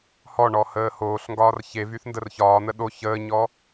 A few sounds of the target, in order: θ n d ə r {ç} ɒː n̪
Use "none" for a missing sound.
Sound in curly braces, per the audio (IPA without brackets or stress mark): ç